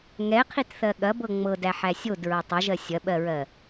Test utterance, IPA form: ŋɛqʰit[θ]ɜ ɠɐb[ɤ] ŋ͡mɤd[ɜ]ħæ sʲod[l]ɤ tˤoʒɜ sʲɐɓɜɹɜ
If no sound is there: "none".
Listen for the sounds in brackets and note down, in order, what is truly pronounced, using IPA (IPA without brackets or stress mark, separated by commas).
θ, ɤ, æ, ɹ